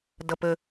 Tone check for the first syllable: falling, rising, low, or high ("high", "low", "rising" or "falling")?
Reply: low